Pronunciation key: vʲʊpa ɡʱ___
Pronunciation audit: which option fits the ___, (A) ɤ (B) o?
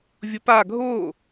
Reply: B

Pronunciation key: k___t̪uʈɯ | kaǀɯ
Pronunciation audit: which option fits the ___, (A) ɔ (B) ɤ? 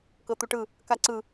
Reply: B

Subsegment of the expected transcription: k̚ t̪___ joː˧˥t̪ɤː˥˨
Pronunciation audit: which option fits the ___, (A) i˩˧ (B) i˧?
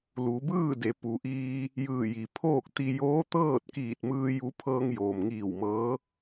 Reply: B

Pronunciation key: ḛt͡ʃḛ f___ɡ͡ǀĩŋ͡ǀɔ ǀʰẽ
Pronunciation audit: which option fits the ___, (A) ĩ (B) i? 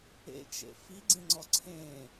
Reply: B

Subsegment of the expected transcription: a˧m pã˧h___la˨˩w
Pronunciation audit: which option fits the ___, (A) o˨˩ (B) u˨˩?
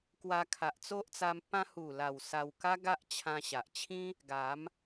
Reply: B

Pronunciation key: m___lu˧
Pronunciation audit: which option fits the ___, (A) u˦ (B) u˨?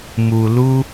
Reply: B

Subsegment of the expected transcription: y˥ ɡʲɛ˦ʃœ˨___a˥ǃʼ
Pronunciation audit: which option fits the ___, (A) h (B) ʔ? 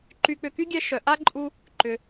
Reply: B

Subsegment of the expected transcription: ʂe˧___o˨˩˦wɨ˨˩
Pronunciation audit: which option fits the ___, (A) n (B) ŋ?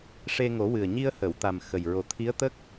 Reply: B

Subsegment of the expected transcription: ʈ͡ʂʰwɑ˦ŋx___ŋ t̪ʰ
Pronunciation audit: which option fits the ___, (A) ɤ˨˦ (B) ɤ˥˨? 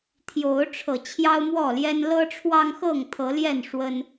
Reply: B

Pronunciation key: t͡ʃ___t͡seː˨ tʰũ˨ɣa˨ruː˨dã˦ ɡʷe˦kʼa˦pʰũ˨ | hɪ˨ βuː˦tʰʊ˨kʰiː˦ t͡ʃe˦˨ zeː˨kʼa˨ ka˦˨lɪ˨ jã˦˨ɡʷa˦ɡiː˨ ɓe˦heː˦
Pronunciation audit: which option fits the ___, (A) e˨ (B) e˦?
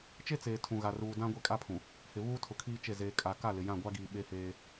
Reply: B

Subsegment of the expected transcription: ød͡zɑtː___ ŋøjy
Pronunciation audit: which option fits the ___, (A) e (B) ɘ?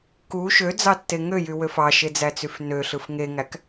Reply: A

